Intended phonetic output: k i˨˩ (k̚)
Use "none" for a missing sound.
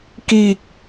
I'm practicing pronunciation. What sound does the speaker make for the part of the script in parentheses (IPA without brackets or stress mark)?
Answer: k̚